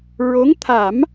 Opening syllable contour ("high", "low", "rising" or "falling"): rising